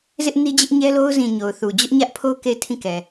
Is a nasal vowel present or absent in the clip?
present